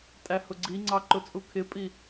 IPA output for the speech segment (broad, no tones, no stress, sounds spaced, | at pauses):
tʼ æ h ʊ ɡ͡ǀ i ŋ͡ǀ ɑ ǃ ʊ t͡sʼ u kʰ ɪ pʼ i